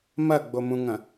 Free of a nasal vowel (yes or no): no